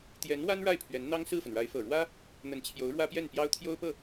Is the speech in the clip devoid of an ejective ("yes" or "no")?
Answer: yes